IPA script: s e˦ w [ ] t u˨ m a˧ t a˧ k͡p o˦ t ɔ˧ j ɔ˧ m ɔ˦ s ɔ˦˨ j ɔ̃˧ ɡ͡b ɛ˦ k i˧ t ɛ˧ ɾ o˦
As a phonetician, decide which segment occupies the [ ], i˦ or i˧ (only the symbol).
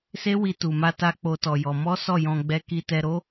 i˧